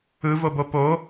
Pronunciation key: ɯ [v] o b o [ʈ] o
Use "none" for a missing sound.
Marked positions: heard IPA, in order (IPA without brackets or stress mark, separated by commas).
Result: v, p